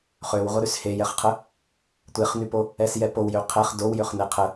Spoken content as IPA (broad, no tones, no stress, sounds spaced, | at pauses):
χ ø w ʁʷ ə ɾ y s h e j ɛ χ qʰ ə | tʷ e χ n y p o | ɛ s j ɛ p o w j ø qʰ ɛ χ d o w j ø χ n e qʰ ə